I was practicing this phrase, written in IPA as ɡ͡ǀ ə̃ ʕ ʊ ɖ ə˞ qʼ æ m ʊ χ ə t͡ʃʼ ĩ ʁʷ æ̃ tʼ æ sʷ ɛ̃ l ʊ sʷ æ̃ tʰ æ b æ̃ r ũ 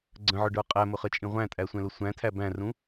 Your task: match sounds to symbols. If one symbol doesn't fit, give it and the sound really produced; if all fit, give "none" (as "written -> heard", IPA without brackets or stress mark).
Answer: none